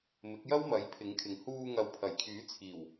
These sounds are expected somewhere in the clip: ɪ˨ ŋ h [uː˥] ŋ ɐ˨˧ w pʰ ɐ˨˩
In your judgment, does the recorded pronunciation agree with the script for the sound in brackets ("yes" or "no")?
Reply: no